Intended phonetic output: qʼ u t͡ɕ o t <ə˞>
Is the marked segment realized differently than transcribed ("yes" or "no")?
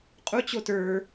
no